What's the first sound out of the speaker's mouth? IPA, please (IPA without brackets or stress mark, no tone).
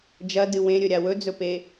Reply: d͡ʒ